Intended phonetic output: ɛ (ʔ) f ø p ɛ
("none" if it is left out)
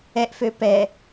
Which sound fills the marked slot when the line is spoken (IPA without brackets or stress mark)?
ʔ